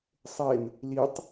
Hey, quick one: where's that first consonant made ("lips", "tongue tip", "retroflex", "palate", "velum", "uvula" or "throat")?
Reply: tongue tip